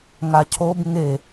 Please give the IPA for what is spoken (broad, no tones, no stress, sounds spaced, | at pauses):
ŋ a cʰ o b ŋ e